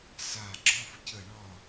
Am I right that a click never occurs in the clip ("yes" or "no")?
no